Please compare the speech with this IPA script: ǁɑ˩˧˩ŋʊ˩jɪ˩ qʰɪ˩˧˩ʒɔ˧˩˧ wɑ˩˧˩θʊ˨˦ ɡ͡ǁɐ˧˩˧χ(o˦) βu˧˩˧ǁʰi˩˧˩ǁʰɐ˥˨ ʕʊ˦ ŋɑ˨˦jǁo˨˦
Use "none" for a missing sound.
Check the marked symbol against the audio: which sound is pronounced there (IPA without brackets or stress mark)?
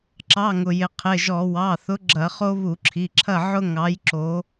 o˦